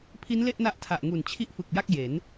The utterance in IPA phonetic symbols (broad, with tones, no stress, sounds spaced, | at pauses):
pʰ i˦˥ n l e˥˩ ʔ n a˦˥ ʔ tʰ a˨˩ ʔ ŋ u˨˩ n t͡ɕʰ i˥˩ ʔ f ɯ˨˩ k̚ j a˥˩ k̚ j e˩˦ n